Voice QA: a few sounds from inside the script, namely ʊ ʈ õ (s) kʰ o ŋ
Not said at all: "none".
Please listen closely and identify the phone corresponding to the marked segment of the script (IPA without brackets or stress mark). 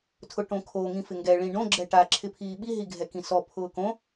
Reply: none